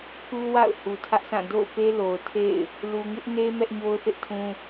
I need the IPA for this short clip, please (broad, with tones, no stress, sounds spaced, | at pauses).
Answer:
pʰ u˦ w a̰˦˨ ʊ̯ h u˨ tʰ ä˦ ʔ s ã˦˨ d o̰˦˨ ʊ̯ p e˦ l o˨ ʊ̯ tʰ ḛ˦˨ ɪ̯ | l u˨ ŋ ɪ˦ ʔ n e˦ m ɛ˦ ʔ ɲ o˦ ʊ̯ θ ɪ˦ ʔ tʰ ũ˦